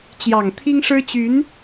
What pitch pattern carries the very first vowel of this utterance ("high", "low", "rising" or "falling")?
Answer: low